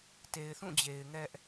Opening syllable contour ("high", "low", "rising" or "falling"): low